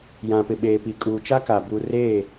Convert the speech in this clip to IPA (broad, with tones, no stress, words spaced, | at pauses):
jã˨pɪ˨ɓeː˨pi˨ kʼuː˨t͡ʃa˦ka˨ bu˨reː˦˨